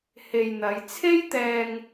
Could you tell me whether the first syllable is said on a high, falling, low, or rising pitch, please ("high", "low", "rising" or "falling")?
low